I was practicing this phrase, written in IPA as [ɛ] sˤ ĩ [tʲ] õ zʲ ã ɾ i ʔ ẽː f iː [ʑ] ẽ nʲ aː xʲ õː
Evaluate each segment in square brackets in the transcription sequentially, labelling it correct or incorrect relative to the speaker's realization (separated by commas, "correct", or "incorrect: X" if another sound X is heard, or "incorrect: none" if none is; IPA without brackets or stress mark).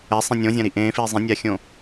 correct, incorrect: nʲ, incorrect: zˤ